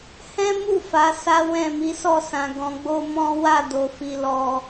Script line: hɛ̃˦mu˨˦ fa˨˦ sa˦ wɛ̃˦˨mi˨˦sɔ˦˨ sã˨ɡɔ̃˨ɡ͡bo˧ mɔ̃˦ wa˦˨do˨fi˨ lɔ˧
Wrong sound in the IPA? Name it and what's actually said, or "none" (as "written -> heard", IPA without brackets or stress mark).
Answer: u˨˦ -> u˦˨